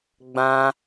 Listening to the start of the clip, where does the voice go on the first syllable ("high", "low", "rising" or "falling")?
high